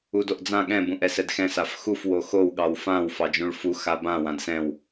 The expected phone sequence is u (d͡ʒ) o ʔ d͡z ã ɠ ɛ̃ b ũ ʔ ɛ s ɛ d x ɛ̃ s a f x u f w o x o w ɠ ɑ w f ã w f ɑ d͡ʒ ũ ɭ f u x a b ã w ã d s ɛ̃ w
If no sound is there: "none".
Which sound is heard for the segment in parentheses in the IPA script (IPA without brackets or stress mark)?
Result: d